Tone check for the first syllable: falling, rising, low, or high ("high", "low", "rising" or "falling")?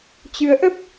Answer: rising